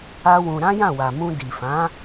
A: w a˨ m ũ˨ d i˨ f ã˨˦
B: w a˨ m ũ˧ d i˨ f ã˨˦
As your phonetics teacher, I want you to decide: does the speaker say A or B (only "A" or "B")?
B